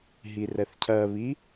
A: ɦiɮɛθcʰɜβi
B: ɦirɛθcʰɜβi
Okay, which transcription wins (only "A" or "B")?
B